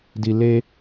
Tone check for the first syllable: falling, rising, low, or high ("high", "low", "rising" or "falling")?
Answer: low